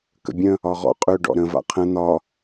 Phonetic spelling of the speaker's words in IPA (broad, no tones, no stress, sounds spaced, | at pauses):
k ə̰ bʲ ə̃ | ɒ ʁ ɔ̰ qʼ ø ɖ ɔ̰ ɾ ə̃ v a̰ qʰ ə̃ n̪ ɒ